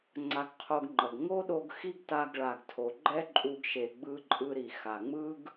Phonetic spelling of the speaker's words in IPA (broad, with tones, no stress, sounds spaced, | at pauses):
ŋ͡ǀ a˧ ɡ qʰ o˧ ɡ ŋ͡ǃ ʌ˩ ɡ ŋ o˥ ɗ o˧ ɡ x i˥ ɡ t a˧ ɡ ɭ a˩ ɡ tʰ o˩ ɡ͡ǃ ɛ˥ ǃʼ u˧ ɡ ʃ e˩ ɡ͡b ɯ˧ ǃʼ ɯ˧ ɾ i˩ x a˩ ŋ͡m ɯ˥ ɡ